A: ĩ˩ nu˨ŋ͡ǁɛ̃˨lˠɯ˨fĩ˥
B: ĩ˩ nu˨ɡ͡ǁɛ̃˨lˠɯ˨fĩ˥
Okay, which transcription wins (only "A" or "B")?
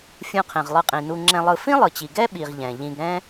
A